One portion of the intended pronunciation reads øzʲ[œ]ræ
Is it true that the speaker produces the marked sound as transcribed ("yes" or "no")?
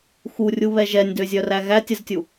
yes